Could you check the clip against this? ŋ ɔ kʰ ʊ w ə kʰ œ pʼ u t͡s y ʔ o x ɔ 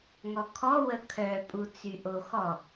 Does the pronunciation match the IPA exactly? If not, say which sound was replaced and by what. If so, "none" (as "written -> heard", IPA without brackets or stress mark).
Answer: ʊ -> ɔ